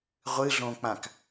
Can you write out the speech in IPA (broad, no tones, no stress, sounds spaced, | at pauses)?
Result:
ʁʷ ɨ ɮ õ k͡p ã k